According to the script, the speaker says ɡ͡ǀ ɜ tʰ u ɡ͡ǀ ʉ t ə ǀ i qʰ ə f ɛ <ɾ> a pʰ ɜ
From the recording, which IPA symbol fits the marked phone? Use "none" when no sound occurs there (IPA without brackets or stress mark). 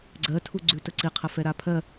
ɾ